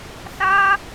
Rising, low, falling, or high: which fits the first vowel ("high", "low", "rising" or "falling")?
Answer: high